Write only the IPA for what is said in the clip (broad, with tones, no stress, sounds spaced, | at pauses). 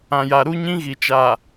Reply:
ã˨ j a˨ ɾ u˦ ɲ ĩ˦ ɣ i˨ t͡ʃ a˨